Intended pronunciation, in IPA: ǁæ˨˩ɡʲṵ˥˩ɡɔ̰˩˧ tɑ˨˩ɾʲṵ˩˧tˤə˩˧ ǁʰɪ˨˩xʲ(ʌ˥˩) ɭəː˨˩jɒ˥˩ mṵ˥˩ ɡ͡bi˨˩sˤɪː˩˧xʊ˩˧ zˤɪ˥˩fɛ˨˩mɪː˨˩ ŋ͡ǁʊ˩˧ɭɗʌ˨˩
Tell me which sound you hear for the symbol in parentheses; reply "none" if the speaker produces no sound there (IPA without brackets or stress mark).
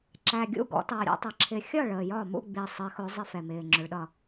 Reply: ʌ˥˩